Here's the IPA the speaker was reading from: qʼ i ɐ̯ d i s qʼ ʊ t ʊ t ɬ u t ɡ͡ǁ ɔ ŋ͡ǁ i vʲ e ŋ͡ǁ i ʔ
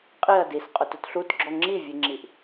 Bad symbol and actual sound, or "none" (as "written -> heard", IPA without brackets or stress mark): none